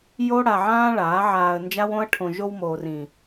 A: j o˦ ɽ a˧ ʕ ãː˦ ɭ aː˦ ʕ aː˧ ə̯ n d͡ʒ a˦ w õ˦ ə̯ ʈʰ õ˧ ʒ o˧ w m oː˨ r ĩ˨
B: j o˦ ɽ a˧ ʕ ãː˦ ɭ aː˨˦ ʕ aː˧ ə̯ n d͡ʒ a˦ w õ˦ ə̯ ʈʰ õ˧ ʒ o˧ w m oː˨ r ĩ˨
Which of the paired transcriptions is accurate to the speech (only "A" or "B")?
B